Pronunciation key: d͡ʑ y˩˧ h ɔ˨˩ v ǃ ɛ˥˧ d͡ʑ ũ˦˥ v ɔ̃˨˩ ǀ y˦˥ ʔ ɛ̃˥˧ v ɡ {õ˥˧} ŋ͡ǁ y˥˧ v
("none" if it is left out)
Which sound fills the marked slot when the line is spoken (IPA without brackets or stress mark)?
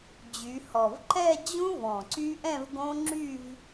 õ˦˥